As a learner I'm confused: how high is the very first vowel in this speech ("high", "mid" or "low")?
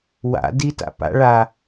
low